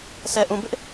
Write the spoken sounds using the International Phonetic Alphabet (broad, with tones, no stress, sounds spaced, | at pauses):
s ɛ˨ ʔ ũ˨ b ɪ˦ ʔ